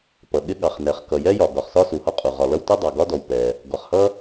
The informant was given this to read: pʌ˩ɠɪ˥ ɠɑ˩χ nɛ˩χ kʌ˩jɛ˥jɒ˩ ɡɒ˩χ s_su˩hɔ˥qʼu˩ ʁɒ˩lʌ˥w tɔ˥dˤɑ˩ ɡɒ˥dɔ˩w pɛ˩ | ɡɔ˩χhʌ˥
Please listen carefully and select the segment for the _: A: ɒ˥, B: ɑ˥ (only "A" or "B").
A